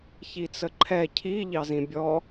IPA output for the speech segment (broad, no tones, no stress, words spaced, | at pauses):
çit͡səǃʰɛ cʰi ʎɑzĩbʲɔ